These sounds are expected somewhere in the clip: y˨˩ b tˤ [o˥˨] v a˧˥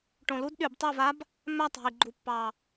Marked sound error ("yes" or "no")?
no